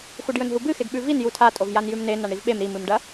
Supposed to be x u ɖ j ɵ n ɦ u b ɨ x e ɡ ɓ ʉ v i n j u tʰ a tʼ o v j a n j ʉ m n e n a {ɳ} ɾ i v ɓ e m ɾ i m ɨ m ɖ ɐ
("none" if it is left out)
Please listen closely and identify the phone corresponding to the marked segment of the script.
ɳ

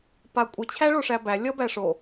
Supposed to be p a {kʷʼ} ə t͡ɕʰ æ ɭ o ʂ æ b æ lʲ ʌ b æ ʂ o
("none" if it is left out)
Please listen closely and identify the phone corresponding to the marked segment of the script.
kʷʼ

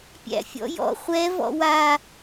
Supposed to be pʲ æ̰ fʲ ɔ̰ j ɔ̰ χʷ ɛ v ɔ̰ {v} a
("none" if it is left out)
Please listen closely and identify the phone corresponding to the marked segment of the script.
w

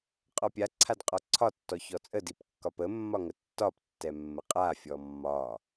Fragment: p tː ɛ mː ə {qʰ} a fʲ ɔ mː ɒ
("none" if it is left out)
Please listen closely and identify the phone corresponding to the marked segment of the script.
qʼ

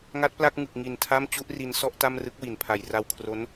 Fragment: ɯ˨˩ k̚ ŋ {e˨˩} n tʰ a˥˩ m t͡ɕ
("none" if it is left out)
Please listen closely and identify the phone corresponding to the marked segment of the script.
i˨˩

